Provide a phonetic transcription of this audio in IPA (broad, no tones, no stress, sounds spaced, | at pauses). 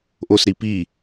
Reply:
ʔ o s ɾ i p i